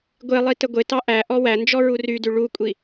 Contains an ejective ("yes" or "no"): yes